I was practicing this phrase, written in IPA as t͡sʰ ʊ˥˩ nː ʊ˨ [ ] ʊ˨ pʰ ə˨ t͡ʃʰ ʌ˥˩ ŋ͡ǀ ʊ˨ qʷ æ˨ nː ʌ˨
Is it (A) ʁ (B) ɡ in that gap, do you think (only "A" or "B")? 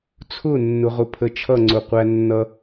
A